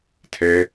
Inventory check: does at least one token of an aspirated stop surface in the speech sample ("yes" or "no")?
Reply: yes